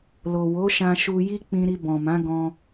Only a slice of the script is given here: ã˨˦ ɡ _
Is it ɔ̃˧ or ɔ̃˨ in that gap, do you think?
ɔ̃˧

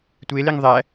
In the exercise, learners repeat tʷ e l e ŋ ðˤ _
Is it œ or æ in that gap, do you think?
æ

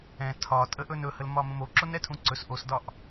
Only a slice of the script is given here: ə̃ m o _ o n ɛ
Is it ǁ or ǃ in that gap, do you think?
ǁ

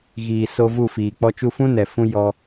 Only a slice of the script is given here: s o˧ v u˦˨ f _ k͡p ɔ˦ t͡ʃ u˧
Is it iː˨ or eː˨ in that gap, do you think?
iː˨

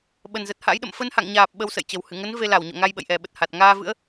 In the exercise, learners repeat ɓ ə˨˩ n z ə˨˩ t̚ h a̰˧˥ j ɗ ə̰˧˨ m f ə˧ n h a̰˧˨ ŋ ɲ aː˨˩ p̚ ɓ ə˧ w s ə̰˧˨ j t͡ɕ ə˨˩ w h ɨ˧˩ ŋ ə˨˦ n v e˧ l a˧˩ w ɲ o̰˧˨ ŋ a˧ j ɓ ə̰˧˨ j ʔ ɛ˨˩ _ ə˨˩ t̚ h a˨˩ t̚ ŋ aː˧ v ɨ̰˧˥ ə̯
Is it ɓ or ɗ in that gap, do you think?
ɓ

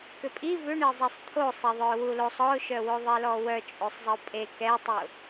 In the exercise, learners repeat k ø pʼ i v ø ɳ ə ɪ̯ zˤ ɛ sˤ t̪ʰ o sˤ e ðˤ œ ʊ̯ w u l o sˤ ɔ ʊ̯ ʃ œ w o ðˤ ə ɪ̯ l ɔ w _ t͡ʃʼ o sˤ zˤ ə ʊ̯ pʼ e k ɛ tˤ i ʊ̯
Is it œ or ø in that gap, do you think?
œ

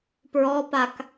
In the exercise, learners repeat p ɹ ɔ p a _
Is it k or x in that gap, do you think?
k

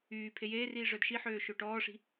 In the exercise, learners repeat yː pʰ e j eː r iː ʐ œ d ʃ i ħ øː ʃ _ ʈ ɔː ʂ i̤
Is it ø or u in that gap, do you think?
ø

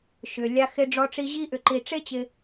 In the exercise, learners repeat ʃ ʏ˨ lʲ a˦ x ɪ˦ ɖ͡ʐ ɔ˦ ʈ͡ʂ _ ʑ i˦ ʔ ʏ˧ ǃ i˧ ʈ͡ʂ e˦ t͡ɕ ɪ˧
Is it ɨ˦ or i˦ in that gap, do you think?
i˦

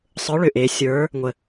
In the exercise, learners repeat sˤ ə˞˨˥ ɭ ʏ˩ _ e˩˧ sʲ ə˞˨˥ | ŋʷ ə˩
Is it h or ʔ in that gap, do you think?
ʔ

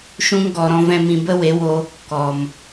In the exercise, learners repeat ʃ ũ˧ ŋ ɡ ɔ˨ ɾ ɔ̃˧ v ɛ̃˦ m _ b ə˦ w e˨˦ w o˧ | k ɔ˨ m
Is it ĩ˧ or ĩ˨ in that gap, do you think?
ĩ˧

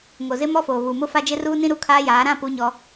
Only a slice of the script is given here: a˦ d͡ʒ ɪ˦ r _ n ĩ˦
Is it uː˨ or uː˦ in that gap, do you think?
uː˦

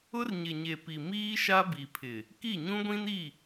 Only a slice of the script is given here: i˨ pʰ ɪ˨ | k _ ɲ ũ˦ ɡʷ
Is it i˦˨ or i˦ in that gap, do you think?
i˦˨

